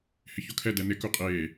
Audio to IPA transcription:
h ɪ ç o kʰ ɛ d ɛ n ɪ k u qʼ eː

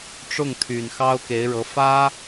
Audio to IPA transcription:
ʈ͡ʂ ʊ˥˩ ŋ t̪ʰ y˨˩ n x ɑ˥ ʊ̯ k e˧˥ ɪ̯ ɻ ɤ˧˥ f ä˥

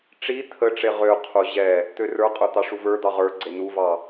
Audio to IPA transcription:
ʈ͡ʂ i t̪ʰ ə ʈ͡ʂ e ʁ ø qʰ u ʑ ɛ | t̪ ø r ə˞ qʼ ə˞ t̪ ɑ ʂ u v ə˞ d̪ ɑ ʁ ə˞ ɡ͡ǀ e n u v ɑ

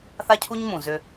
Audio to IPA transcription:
θ a˦ cʰ u˦ ɲ m ũ˨ z ʏ˦

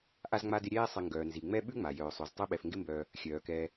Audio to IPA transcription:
ʔ a˦ z ŋ͡m a˦ d ɪ˦ ɾʲ ɛː˥ sˤ ɪ˨ ŋ ɡ œː˩ n z i˩ ŋ͡m ɛ˥ ɓ ʉ˥ ŋ͡m a˩ j œː˨ sˤ ʉ˨ z tˤ o˦ ɓ ɛ˨ f ŋ ɡ ɪ˦ m b œː˨ | xʲ œː˩ k ɛː˨

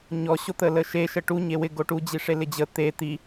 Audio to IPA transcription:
ɲ ɔ ɕ o t̪ ə l ə ʃ e ʃ ə ʈ u ɲ e w ɪ ɡ o ʈ u d͡ʑ i ʂ e l ɪ d͡ʑ ə t̪ e t̪ i

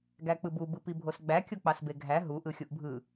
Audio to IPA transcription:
ɡ æ k͡p ɯ b u b ɯ p i bʱ o s ɡ͡b æ kʲ o k͡p ɑ s b e ɡʱ æ ɦ u ʔ ɯ xʲ u ʔ bʱ ɯ

